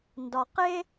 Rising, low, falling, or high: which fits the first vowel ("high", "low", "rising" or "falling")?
low